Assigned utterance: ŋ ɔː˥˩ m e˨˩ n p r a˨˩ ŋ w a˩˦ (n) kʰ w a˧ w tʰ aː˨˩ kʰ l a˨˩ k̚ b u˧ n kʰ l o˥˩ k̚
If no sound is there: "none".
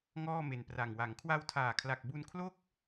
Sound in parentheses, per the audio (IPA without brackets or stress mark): ŋ